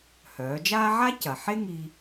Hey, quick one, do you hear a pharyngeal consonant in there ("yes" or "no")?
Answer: yes